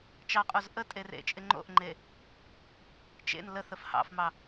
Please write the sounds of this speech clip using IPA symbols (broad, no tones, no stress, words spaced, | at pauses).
t͡ʃɑqʼoz ʔətʼe rḛt͡ʃʼɪ ŋ͡ǃo̰ʔŋ͡ǃe | t͡ʃḛn ləθəf hɑ̰fmɑ